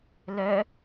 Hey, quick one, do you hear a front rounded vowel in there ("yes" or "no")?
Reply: yes